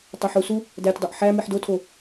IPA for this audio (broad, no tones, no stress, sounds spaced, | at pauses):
tˤ o ħ u s u | d æ tʲ dˤ o ʔ ħ æ m i ħ d o tʰ o